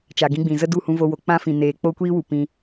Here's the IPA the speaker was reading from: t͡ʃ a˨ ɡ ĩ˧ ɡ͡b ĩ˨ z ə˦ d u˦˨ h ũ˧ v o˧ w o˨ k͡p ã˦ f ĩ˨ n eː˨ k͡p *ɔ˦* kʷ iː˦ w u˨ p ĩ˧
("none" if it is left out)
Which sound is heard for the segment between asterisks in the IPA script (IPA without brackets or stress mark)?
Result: o˦